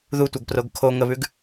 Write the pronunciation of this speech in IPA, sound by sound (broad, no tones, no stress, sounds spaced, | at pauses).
ð u tʷ ɐ ɡ p r o ɡ kʰ o ŋ ə β ʉ ɡ